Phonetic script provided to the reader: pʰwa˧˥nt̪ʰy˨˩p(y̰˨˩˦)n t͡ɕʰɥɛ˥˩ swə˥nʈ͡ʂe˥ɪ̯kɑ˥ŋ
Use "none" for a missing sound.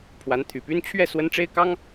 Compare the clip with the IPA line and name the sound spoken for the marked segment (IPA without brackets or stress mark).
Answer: y˥